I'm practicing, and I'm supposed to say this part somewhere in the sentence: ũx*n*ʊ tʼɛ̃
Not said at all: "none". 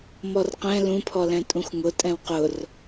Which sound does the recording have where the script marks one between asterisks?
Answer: ŋ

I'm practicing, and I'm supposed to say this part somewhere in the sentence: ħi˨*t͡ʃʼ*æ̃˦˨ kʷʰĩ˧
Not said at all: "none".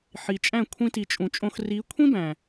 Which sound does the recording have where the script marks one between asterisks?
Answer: t͡ʃʼ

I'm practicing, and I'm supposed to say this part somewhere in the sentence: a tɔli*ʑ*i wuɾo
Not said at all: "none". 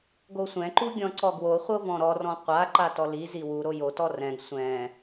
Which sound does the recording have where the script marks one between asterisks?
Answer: z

